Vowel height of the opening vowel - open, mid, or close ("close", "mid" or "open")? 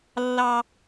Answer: open